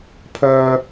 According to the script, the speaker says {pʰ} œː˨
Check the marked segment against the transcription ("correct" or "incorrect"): correct